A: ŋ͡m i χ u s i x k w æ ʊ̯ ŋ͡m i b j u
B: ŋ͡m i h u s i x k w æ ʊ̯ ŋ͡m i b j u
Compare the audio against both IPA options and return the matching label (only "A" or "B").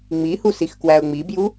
B